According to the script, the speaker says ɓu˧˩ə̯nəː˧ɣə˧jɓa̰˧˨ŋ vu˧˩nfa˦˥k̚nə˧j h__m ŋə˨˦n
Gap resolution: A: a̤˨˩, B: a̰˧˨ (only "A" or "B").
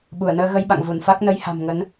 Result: A